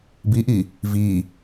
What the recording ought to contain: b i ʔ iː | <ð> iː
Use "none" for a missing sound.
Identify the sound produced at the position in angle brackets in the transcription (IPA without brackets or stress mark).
v